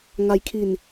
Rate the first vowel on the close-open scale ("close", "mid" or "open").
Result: open